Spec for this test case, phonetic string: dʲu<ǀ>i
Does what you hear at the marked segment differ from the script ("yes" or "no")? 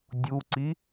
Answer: no